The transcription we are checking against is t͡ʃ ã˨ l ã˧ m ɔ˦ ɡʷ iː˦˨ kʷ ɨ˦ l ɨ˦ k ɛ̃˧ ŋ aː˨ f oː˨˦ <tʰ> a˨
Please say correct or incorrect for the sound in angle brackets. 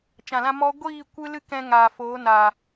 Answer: incorrect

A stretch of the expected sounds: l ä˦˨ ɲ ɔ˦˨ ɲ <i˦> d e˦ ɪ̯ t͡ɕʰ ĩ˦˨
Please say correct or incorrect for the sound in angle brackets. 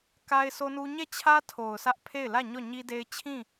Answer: correct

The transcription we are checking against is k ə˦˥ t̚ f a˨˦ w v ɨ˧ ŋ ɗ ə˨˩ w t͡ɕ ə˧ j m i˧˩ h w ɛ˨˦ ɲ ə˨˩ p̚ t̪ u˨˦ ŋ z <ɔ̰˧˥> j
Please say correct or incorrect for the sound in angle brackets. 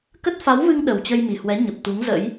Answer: incorrect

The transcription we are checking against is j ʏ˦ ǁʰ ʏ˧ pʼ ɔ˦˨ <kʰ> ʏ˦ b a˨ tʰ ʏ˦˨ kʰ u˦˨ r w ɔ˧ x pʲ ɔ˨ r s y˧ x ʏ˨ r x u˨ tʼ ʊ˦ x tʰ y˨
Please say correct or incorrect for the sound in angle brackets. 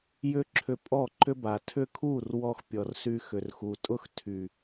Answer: incorrect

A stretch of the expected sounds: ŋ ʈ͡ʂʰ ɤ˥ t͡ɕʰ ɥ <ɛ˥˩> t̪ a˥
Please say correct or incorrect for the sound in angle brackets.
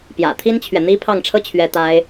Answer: incorrect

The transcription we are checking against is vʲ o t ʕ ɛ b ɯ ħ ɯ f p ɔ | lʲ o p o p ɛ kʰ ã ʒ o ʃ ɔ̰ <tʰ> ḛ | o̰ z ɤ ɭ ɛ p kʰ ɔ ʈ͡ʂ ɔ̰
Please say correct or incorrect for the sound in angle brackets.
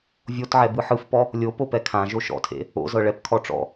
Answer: correct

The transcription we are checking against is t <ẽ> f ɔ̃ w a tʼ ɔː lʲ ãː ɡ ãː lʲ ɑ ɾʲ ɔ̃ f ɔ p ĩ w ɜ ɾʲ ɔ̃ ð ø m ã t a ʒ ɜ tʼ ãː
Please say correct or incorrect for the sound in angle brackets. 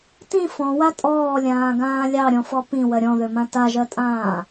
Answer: incorrect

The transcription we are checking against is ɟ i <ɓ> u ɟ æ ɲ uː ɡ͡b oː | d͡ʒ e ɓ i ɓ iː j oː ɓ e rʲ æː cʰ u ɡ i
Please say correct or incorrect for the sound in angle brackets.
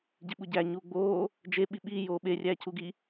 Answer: correct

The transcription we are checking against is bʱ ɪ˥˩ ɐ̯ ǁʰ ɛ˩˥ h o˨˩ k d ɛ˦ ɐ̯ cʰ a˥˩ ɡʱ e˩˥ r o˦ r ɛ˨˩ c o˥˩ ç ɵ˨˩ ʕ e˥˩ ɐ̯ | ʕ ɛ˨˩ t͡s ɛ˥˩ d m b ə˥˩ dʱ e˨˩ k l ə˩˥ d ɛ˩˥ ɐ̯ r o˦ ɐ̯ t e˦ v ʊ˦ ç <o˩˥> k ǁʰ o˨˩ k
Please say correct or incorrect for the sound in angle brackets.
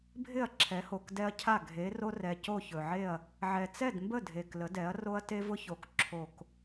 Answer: correct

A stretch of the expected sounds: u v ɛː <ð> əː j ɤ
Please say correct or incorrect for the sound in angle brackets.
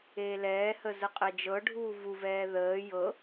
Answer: correct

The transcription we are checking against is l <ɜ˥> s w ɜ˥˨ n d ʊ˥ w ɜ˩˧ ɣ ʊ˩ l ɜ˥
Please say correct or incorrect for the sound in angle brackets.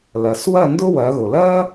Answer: incorrect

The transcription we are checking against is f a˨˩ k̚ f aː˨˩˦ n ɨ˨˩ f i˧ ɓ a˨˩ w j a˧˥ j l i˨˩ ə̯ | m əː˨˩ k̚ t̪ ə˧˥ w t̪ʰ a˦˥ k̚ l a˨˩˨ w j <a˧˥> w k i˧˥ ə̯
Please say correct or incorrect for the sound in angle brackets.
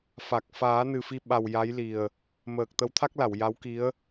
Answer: correct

